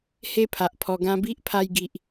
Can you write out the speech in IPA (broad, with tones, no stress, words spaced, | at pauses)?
he˦pʰa˨ʔpʰɔ˧ɡã˦ bi˦ʔpʰa˧jɡi˨ʔ